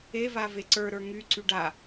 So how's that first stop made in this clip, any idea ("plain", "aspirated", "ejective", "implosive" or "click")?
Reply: click